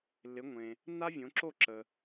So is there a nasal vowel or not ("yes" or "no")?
yes